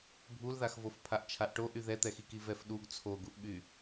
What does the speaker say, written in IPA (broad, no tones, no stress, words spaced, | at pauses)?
bʱulðaxvof pʰaʔt͡ʃʰaʔʈoʔy ðɛt̪ɛxiki vɛfɗuɡ t͡sʰoɡuʔɓy